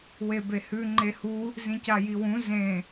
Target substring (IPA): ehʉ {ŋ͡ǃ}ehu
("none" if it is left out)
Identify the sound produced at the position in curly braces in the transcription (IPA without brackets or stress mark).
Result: ŋ͡ǃ